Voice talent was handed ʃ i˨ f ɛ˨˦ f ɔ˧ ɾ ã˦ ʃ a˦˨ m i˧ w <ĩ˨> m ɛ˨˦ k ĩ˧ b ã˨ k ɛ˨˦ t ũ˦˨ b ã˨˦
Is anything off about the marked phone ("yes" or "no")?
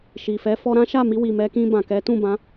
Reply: yes